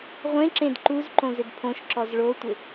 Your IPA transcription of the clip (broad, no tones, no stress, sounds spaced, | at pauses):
ʁʷ ẽ ǁ ẽ d ǃ u z ǃ õ z ɪ d pʰ õ ʃ ǁ ɔ z ɭ o tʷ ɪ